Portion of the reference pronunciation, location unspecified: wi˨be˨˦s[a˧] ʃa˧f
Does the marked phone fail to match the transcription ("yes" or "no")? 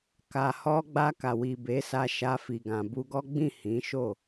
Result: no